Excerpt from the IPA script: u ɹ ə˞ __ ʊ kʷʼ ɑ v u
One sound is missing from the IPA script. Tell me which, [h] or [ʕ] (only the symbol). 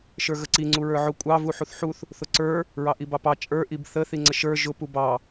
ʕ